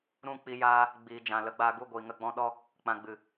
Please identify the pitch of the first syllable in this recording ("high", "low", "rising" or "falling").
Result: falling